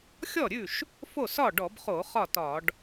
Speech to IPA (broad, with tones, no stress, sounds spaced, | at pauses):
xʲ ɔ˥˩ ɾʲ ʉ˥˩ ʃ | f o˥˩ s ɒ˥˩ ɖ ɔ˧˩˧ b χ o˧˩˧ χ ɒ˥˩ t ɒ˧˩˧ ɖ